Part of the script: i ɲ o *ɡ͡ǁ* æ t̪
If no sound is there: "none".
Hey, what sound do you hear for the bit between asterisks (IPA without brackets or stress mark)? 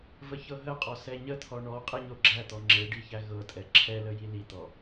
ɡ͡ǁ